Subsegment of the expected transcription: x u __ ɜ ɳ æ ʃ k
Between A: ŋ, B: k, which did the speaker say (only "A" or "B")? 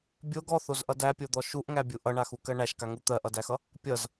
B